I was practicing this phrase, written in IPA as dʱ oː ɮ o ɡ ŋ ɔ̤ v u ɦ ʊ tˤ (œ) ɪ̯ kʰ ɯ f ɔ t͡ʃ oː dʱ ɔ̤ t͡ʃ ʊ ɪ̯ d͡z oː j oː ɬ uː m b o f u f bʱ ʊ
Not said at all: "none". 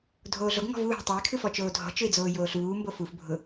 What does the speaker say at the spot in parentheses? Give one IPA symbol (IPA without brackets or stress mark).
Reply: œ